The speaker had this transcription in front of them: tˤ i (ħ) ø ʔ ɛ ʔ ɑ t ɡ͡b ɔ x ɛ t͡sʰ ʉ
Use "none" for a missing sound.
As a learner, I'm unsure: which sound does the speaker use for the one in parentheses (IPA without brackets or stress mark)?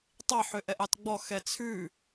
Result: ħ